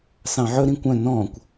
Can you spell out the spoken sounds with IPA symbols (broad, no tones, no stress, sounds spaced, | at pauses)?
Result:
s ɑ̃ ʕ ɵ ɾ ĩ kʷ œ̃ n ɔ̃ kʷ